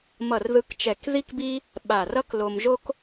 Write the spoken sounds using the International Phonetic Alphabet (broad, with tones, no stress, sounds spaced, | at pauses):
m ʌ˧˩ r ð ɯ˧ k t͡ʃ ɛ˧˩ k ð i˥ k b i˥ | ɓ a˧˩ r ʌ˥ k l o˧ m ʒ o˥ k